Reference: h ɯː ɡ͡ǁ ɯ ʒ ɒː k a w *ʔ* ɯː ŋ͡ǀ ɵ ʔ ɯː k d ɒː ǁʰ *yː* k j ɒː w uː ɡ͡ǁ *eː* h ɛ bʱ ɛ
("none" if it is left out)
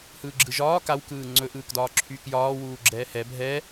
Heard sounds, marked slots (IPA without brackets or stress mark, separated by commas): k, yː, ɛː